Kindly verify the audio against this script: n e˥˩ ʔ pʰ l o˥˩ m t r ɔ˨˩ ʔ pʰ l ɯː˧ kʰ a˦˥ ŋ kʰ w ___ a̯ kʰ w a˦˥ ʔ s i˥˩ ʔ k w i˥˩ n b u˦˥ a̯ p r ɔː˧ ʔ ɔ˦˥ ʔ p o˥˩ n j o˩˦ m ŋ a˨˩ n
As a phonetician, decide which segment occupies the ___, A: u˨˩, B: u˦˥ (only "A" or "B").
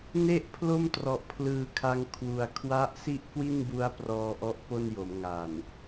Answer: A